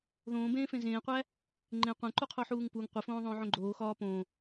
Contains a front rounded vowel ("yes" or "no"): no